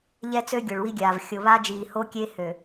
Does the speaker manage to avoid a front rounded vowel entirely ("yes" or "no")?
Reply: no